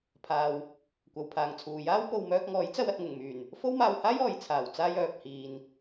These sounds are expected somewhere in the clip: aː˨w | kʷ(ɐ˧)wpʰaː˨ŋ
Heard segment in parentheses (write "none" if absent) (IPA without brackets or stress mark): ɐ˨